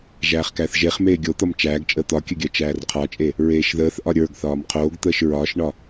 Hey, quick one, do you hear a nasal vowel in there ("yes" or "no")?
no